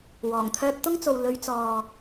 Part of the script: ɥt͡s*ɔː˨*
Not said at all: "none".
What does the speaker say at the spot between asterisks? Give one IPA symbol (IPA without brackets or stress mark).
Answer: ɔː˨